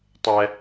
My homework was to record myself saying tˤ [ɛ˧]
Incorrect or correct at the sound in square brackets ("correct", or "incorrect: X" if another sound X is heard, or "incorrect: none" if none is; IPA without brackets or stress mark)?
correct